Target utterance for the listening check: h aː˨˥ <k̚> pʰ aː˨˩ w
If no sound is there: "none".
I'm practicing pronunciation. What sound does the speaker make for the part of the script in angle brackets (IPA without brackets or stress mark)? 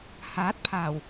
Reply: t̚